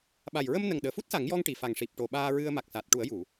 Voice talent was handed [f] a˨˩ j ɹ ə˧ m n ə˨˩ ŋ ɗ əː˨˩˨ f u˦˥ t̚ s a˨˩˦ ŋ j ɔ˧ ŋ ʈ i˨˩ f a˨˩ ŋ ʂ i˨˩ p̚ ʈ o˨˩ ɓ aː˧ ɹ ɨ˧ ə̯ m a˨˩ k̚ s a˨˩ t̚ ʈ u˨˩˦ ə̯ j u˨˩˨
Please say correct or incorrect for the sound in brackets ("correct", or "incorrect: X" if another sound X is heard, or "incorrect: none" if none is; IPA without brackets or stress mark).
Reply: incorrect: ɓ